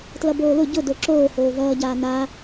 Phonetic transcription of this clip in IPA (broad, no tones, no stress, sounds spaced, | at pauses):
t l ʌ b oː l ʊ ɟ ʊ d o ǁ oː h oː v ʌː ɟ aː n a